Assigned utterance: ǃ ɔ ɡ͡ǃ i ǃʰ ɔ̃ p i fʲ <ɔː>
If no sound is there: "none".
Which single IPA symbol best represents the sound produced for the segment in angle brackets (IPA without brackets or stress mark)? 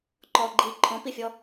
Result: ɔ